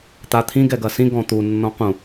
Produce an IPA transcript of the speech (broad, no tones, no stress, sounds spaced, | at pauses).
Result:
t̪ a t̪ʰ ĩ ɡ ɛ ɡ ɐ s ĩ ɡ ɔ̃ t̪ u nː ɔ̃ q ũ